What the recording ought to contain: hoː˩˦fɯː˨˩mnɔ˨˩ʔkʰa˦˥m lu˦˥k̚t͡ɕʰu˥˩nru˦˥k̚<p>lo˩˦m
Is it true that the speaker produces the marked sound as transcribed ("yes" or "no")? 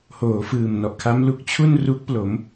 yes